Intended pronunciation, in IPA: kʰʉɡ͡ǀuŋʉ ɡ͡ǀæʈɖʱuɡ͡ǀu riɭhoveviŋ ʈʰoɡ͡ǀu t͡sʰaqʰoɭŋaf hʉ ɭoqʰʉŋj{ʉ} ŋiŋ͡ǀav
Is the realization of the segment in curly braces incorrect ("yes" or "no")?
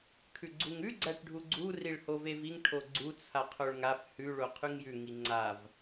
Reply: no